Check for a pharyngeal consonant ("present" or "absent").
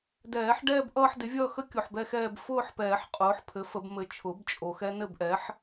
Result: present